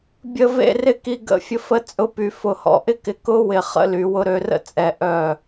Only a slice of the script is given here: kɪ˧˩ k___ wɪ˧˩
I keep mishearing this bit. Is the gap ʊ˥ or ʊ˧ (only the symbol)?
ʊ˥